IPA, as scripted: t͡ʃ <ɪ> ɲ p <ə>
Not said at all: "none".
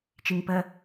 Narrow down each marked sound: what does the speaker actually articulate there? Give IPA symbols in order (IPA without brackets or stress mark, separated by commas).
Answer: i, ə